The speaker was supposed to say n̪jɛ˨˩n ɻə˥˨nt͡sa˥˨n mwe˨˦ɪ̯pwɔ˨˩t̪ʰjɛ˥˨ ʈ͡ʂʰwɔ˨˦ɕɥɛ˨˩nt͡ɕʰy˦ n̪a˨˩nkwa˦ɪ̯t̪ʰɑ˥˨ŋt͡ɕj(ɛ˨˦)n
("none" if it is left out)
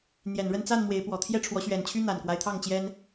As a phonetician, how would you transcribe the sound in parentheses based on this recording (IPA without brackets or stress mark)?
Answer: ɛ˦